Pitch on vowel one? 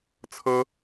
high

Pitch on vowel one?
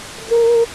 high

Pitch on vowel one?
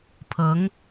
rising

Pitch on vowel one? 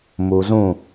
low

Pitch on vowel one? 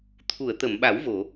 low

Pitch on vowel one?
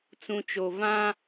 low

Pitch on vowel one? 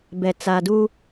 low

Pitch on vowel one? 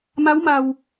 rising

